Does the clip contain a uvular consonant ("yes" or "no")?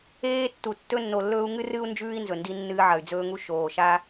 no